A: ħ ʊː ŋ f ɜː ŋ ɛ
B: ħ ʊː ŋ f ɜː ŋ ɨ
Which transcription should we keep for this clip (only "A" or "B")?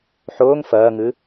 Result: B